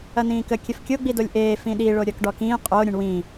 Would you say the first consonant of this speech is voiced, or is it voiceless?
voiced